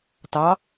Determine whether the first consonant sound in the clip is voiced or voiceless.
voiceless